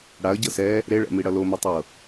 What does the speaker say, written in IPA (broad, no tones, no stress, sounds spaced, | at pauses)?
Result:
ɽ a ə̯ ɟ ɤ s ɛ | ɾ e ɭ ɛ̰ m i ɽ ʌ l o m i tˤ ɤ